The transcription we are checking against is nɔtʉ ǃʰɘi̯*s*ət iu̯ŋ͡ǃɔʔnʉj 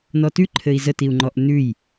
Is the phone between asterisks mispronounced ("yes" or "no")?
yes